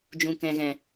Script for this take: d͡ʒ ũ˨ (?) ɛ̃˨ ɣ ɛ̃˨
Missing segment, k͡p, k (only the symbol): k